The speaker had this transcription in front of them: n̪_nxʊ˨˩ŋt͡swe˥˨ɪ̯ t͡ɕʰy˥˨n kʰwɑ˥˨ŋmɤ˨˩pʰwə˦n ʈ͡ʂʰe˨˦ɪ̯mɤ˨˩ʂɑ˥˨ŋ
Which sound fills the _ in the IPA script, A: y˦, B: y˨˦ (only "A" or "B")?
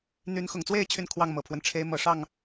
B